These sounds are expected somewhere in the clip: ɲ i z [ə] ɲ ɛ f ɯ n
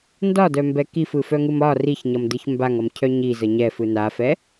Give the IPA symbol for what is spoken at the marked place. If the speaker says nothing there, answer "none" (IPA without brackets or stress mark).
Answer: ə